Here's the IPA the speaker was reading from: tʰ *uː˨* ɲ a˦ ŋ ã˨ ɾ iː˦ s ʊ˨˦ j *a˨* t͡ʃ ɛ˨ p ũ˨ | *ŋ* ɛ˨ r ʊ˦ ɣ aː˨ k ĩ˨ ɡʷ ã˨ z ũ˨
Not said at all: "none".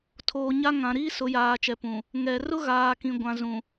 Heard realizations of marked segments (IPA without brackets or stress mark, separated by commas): oː˨, aː˨, ŋ